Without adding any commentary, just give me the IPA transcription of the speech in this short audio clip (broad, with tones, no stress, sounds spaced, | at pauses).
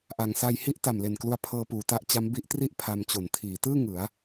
ʔ a˩˦ ŋ s a˧ j h i˥˩ ʔ t a˨˩ m l e˨˩ n k l u˧ a̯ pʰ ɤː˧ p uː˩˦ t a˦˥ ʔ t͡ɕ a˦˥ m b i˦˥ ʔ t r i˥˩ ʔ pʰ a˧ m t͡ɕ o˨˩ n tʰ iː˩˦ t ɯː˥˩ ŋ ɯ˩˦ a̯